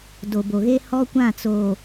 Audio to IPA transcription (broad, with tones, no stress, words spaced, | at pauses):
do˨bo˨ɣe˦ hɔ˦kʷã˦˨t͡soː˨